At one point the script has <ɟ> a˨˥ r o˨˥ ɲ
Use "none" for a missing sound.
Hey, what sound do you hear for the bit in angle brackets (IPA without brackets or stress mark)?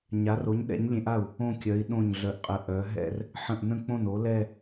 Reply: ɲ